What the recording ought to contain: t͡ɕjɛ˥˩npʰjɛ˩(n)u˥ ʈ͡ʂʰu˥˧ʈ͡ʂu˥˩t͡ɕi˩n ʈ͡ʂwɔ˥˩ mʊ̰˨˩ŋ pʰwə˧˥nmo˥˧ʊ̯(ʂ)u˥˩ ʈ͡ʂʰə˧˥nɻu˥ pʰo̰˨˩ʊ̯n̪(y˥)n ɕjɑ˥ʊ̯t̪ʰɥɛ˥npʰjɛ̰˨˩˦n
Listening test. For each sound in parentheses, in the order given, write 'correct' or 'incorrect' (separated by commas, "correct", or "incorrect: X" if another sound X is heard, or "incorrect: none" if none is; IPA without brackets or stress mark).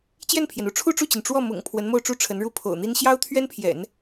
correct, incorrect: ʈ͡ʂ, incorrect: i˥